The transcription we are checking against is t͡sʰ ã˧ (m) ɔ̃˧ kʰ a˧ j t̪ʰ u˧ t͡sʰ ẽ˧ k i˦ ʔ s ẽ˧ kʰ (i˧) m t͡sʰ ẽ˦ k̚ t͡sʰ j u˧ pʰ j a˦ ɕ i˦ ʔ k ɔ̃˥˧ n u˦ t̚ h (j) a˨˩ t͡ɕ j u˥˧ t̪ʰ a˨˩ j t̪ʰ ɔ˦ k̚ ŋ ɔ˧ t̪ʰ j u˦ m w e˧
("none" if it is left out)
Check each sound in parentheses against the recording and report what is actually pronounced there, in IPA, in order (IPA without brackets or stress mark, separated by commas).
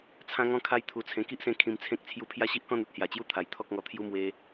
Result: ŋ, ĩ˧, j